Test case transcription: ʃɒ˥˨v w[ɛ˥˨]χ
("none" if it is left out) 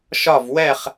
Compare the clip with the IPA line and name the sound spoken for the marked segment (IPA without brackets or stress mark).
ɛ˥˨